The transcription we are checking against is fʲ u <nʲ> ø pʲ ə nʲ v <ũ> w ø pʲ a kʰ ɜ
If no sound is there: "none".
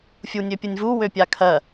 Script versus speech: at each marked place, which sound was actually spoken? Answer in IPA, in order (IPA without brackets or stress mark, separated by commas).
nʲ, u